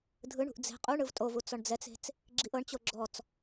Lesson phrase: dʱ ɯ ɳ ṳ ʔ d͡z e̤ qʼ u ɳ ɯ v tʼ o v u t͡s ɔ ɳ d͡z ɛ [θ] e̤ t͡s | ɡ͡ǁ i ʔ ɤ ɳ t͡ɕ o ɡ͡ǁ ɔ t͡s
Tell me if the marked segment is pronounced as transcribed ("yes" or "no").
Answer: no